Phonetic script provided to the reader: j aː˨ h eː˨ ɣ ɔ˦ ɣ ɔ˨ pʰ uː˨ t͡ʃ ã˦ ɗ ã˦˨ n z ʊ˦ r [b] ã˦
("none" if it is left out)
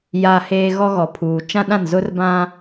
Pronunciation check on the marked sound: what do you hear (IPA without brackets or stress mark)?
b